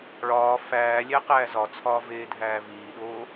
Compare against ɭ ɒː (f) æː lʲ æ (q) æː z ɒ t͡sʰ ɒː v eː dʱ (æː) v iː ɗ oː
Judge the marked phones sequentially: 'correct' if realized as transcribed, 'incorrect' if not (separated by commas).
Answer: correct, correct, correct